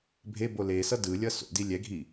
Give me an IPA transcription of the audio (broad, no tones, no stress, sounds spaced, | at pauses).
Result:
bʱ e b o l e s ʌ d ɯ lʲ ʌ s o̰ d i lʲ ɛ ɡʱ i